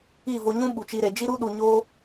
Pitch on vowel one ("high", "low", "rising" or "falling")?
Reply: falling